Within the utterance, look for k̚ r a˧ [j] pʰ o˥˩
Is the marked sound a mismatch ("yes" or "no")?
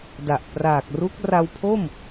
yes